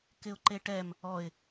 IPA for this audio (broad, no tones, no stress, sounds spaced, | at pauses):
k ɪ ʊ̯ ǃ e ʈ ɛ m | ɔ ɪ̯